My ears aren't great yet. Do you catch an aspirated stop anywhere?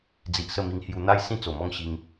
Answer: no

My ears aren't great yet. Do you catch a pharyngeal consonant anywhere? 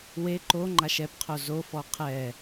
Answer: no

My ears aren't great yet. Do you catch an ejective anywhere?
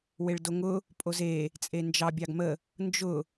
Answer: yes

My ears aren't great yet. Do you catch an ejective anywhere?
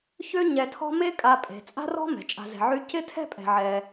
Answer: yes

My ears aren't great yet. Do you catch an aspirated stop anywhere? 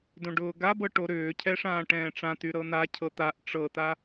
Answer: yes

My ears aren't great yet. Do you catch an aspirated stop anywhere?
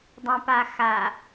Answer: no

